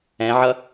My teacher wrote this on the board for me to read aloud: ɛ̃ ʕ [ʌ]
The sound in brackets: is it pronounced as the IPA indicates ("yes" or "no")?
yes